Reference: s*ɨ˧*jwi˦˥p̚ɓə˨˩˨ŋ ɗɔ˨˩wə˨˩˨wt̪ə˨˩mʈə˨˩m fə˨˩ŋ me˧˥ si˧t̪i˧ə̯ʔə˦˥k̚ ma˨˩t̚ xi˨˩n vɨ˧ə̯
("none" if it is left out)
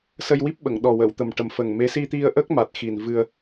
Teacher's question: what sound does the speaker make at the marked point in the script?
ə˧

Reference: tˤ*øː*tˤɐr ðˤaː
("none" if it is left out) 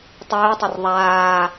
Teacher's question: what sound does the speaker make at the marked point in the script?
ɵː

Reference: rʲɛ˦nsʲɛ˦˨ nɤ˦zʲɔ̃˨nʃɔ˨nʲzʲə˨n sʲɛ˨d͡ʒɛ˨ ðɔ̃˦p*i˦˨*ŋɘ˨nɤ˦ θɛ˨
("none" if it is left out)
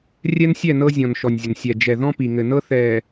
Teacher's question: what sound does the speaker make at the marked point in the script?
i˨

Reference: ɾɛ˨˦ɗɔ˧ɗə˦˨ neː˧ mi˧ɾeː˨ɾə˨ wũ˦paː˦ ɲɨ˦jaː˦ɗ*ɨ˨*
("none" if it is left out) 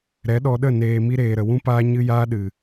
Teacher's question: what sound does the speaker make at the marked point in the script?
ɨ˨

